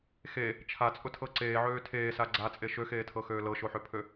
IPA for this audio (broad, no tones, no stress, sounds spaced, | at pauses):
x e | t͡ʃʰ a t͡sʼ ʊ tʰ ɤ ǀ eː ʕ øː tʰ eː s a ɡ͡ǀ a t͡sʼ e ʃ ø x eː tʰ ɤ x øː l ɤ ʃ o ħ ø pʰ ø